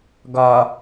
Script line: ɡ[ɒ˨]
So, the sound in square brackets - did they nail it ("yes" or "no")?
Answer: yes